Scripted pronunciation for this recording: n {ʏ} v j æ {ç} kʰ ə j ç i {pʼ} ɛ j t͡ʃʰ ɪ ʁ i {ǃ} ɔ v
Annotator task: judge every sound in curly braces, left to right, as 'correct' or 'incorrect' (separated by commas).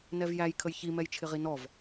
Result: incorrect, incorrect, incorrect, incorrect